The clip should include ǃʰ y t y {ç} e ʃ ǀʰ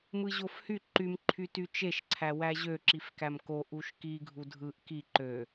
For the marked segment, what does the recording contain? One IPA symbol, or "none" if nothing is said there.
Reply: t͡ʃ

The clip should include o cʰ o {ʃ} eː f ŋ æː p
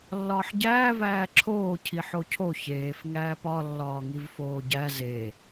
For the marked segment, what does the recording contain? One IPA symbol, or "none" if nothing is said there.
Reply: ç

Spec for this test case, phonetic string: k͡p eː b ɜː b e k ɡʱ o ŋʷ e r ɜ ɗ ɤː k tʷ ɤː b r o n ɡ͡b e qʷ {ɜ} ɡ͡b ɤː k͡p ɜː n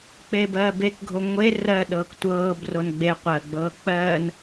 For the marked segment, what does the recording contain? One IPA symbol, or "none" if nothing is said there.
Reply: ɜ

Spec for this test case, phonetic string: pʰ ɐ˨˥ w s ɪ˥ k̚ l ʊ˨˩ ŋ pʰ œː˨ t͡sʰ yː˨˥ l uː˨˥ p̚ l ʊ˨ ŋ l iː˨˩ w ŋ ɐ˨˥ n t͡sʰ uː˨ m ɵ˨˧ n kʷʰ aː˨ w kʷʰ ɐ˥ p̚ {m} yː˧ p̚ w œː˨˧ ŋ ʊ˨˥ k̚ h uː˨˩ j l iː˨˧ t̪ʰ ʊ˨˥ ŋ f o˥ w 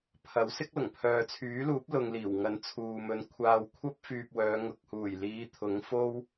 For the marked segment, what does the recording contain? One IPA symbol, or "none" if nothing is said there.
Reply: f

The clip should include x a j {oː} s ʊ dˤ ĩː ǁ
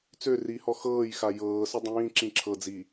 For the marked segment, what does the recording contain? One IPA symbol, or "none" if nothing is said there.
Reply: ɤː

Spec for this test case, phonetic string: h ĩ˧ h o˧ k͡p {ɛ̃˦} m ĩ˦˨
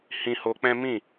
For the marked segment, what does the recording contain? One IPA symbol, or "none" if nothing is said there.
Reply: ɛ̃˦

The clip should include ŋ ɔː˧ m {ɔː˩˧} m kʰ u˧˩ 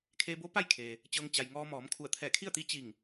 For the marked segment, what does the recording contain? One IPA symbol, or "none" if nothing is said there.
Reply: ɔː˩˧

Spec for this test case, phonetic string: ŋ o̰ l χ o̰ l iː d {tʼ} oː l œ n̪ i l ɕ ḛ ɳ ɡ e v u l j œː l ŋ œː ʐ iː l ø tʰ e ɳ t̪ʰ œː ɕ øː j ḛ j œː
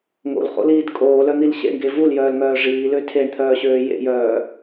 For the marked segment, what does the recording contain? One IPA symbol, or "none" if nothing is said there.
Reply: kʼ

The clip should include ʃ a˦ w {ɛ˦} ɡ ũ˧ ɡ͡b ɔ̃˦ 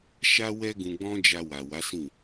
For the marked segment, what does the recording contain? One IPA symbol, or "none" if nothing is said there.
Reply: ɛ˦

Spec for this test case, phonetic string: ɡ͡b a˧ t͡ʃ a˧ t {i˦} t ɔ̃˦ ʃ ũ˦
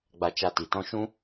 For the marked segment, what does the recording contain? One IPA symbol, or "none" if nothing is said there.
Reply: i˨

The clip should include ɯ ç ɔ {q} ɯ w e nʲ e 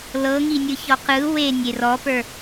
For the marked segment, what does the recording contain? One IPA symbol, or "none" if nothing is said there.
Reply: q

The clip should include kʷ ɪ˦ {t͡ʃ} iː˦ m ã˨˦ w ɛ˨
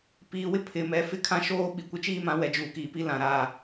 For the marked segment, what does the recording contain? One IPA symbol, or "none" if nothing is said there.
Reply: t͡ʃ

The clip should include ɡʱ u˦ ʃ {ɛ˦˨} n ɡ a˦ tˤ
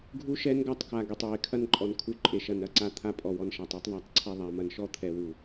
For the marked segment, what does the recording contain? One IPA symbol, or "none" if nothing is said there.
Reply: ɛ˦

